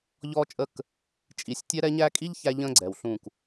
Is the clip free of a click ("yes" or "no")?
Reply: no